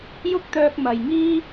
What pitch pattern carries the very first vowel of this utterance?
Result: high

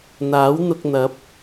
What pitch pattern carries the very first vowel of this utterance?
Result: rising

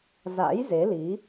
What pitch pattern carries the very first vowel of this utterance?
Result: rising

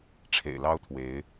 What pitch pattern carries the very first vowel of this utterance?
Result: low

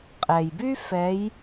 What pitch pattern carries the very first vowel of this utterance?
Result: low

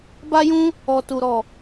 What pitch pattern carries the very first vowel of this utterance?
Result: high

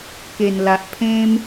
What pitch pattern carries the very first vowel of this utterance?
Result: low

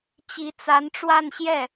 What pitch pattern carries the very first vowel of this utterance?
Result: rising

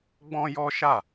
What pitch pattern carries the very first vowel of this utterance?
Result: high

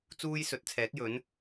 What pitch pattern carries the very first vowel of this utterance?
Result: high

